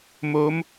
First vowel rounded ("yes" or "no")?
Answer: yes